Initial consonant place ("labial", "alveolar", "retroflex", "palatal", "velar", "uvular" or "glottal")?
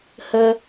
glottal